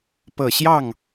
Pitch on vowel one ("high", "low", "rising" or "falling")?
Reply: low